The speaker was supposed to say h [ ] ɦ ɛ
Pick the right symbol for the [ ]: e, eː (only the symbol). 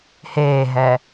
eː